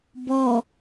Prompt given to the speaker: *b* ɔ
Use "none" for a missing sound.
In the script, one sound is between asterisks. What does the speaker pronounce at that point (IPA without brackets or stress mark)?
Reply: b